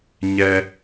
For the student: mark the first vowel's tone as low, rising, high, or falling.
high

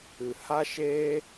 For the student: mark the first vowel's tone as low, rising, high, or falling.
low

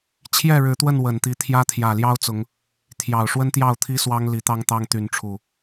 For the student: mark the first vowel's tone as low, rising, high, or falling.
falling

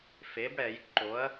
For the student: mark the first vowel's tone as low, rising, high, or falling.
rising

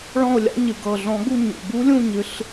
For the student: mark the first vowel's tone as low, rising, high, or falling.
falling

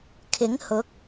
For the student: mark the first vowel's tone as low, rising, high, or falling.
rising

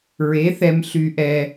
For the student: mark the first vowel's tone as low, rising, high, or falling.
rising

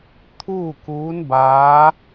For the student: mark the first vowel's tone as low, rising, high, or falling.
falling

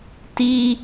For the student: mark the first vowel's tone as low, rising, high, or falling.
high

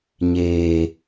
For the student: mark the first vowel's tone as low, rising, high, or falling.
low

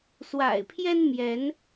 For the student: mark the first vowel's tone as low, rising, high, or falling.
low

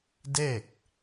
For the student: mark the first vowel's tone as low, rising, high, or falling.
falling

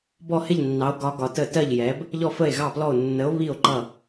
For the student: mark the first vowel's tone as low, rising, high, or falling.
falling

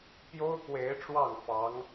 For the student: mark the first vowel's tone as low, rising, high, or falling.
high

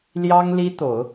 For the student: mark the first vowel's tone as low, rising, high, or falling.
high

